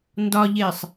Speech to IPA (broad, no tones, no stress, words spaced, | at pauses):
ndɒʎesˤ